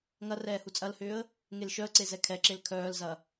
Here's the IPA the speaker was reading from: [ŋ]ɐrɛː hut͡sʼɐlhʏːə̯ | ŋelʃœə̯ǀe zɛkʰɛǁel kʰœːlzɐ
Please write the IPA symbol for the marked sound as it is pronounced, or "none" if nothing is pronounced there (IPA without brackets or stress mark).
ŋ